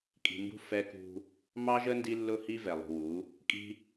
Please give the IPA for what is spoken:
kʼi̤˨mbṳ˦ fɛ˦kṳ˦ | mɑ˦ʒə˦ ndi˦lːʊ˦hi˦ vɛ˨lˠṳ˨wu˨˦ | kʼi̤˦

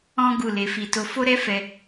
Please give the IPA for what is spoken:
ɔ̃˦ ɡu˦˨le˨˦fi˧to˦ fo˦ɾɛ˦fɛ˧

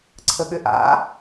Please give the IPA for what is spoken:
ǀʰəɠʏʔa̰

